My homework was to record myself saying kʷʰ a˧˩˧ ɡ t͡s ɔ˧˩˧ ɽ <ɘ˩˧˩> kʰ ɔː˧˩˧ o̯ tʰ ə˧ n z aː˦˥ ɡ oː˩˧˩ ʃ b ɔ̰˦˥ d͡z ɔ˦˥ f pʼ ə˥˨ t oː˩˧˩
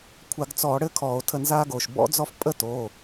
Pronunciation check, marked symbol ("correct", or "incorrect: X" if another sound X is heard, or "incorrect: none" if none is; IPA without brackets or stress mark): incorrect: ɘ˥˨